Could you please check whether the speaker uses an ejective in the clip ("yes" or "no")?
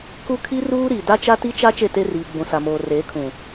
no